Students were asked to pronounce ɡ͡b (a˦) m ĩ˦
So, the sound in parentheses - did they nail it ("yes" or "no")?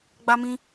yes